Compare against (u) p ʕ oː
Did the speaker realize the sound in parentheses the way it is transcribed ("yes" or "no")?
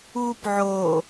no